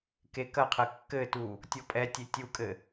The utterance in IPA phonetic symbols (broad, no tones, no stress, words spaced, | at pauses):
kekɐqʰɘ kːɘtu | tʲɔpʼɛtʲe tʲukʼɘ